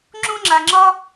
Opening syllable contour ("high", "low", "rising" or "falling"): high